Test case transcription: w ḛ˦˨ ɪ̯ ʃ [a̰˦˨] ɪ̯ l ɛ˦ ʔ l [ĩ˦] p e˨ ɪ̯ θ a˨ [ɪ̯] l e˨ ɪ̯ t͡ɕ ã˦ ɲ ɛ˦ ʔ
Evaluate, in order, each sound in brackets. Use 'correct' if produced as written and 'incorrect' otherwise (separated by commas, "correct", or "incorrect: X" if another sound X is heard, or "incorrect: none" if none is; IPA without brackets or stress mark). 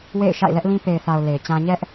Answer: correct, correct, incorrect: ʊ̯